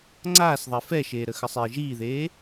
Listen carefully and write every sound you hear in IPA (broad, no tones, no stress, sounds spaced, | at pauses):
ŋ͡ǀ aː s ðˤ ɛ f ɛ ʃ eː ɾ ə x ə sˤ eː ʒ iː ð eː